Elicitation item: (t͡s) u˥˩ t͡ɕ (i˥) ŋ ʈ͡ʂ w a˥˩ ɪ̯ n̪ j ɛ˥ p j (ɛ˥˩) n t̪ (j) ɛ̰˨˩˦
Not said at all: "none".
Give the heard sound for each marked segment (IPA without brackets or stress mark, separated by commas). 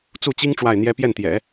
t͡s, i˥, ɛ˥˩, j